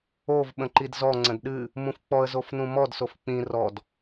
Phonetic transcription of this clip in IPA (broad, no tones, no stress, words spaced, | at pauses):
ov ɓə̃ǃidzɔ ŋ͡ǀə̃dɗɨ | mũfk͡pɔə̯ zofnũmɔd sofk͡pĩ rɔd